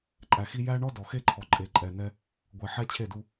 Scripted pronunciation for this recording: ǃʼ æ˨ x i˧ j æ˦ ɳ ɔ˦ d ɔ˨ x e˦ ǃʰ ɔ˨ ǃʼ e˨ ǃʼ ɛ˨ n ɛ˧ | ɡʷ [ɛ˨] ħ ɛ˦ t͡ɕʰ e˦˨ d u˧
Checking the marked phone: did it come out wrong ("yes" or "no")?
no